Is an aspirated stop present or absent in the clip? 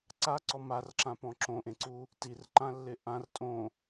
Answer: absent